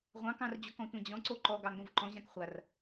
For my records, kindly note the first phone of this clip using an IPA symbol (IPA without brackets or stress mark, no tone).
ʁʷ